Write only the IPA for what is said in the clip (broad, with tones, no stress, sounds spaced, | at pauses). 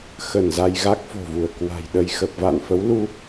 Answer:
x ə˧˩ n z a˧ j ɣ a˦˥ k̚ f o̤˨˩ v u˧˩ ə̯ k w a̤˨˩ j ɗ ə˧ j x ə˨˩ p̚ v a̰˧˨ n f ə˨˦ w l u˧